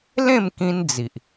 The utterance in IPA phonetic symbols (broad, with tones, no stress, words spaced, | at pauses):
lẽ˥˧m kĩ˦nd͡zi˨ʔ